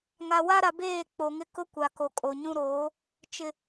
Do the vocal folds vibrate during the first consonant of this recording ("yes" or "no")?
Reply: yes